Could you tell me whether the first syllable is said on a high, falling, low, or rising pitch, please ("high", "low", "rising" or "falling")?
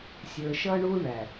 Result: low